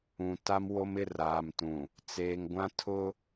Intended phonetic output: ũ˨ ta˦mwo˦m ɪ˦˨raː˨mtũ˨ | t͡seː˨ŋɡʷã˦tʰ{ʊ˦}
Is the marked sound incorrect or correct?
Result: correct